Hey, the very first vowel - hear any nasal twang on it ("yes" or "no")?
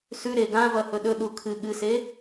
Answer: no